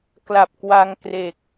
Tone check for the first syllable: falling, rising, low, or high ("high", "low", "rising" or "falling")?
low